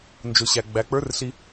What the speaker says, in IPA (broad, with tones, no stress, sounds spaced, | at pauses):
n d͡ʒ ʊ˩ ɕ æ˩ ɡ͡b æ˩˧ k͡p ə˞˧˥ r ɬ i˧